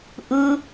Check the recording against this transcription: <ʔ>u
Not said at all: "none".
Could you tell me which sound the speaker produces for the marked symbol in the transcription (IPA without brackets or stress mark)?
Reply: ʔ